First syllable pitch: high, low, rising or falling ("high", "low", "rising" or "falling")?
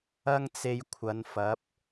high